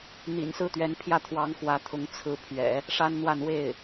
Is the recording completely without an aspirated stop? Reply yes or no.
no